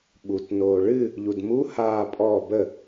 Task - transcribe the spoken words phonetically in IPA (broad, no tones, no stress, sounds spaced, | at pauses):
ɓ u t n oː ɭ ɨ | ʎ u d m u h aː pʼ ɔ b ə